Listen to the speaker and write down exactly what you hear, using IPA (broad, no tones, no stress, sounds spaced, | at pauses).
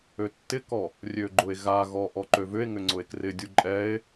ø tː ɪ k ɔ | rʲ ø ɡ͡ǃ ʊ e̯ ɣ a ɣ ɔ ʔ ɔ ǃ ø v ʏ e̯ ŋ ʏ ŋ͡ǀ ʊ e̯ k r ɪ dʲ u ǃʼ ɛ e̯